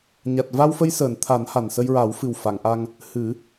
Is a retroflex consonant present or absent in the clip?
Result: absent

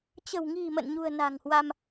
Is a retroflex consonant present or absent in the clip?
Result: absent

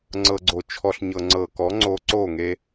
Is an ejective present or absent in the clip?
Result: absent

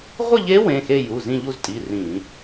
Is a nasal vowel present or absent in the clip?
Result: present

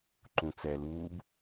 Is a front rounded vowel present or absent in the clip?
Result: absent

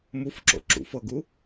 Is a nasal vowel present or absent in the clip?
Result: absent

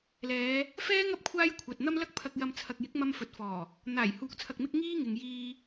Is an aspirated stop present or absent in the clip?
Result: present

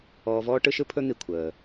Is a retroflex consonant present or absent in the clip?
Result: present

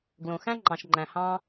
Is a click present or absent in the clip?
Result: present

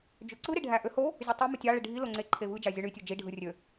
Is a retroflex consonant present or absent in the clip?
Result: present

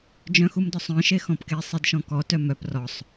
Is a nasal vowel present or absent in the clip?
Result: present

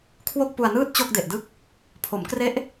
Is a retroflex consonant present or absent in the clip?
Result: absent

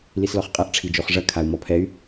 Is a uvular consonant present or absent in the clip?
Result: present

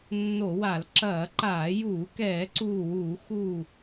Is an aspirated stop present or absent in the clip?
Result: absent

